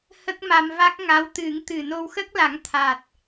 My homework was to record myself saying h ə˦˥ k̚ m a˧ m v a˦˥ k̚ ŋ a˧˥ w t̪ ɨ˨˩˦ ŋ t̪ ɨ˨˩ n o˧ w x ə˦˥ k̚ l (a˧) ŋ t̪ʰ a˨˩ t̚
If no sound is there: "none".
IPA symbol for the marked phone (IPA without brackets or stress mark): a˨˩˦